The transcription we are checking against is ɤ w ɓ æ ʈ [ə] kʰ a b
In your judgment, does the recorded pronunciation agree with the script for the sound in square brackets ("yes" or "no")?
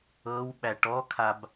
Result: no